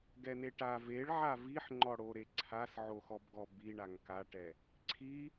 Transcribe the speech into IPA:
ɡ ɛ n e ʈ a v e ɭ ʕ a v i ħ ŋ͡ǃ ɔ ɽ o ɾ e ǀʰ a s ʕ o x ɔ b ɡ ɔ b i ɳ a ŋ k a ʈ ɛ | ǀʰ i

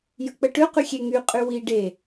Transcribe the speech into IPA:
j ə k͡p ə ʈ ø q y xʲ e ŋ y qʼ y w i ɖ e

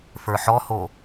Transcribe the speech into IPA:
f ə˞ ħ ɔ h o

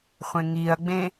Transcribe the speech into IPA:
χʷ ẽ ŋ i ɐ̯ ɡ͡b ẽ

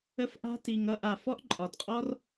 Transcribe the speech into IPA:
ə˦ f ʔ a̤˦ t i˨ ŋ ʌ˦˨ ʔ a˨ f ɔ˦ ʔ ǃʼ ɒ˨ d qʼ ɔ˦ r

